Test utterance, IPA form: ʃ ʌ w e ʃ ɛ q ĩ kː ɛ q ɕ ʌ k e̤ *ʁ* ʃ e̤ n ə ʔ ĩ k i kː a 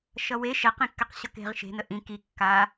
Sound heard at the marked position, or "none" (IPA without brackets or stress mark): ʁ